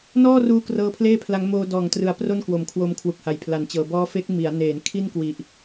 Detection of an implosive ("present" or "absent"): absent